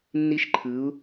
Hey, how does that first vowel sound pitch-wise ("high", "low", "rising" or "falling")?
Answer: high